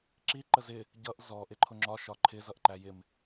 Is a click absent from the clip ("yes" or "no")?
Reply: no